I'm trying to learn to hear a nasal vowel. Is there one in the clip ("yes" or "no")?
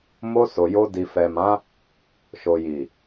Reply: yes